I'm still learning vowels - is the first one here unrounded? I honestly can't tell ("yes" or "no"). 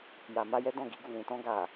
yes